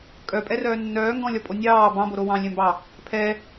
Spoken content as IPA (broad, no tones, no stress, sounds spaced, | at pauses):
kʼ œ pʼ ɛ r œː nː œː ŋ ɡ ɔ̃ lʲ ɒ pʼ o nʲ ɑː b ɑ̃ b o ɾ o w ɑ̃ lʲ ɛ̃ m b ɑ | pʰ ɛ